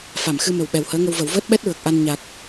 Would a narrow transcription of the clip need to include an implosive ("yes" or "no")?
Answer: yes